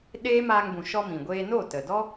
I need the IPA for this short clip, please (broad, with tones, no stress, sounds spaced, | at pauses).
ɗ eː˦ m aː˧ ŋ b ũ˨ ʃ ɔ˧ m ĩ˨ ɡʷ eː˧ n o˦˨ t ə˨ d ɔ˦